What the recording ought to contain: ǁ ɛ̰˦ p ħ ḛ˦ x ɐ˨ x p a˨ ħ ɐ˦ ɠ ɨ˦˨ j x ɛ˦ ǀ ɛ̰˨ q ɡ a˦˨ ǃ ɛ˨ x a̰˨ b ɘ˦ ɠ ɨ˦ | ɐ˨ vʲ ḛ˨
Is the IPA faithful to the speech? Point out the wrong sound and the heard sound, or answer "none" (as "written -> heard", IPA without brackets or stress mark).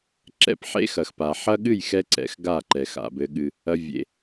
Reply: q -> x